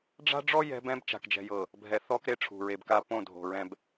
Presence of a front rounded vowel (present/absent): absent